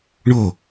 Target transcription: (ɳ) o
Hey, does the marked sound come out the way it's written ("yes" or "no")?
yes